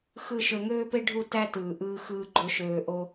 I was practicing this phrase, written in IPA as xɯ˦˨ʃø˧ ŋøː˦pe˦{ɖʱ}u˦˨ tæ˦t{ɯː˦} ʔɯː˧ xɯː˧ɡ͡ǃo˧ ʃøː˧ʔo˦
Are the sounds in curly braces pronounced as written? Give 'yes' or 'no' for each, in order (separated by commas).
yes, no